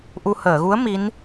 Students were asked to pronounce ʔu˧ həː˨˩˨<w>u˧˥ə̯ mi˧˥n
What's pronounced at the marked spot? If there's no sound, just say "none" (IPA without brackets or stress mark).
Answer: ɣ